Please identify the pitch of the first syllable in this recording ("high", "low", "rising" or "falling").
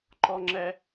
high